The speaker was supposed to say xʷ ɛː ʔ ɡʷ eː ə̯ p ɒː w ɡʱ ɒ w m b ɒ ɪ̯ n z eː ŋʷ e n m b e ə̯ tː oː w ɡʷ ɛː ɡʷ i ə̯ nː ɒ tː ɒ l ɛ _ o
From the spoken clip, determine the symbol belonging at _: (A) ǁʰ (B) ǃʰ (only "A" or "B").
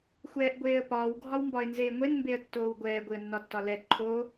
B